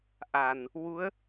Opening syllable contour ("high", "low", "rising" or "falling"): low